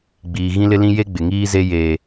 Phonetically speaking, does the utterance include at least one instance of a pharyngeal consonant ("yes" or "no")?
no